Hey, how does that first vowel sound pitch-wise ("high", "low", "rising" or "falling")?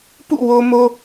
falling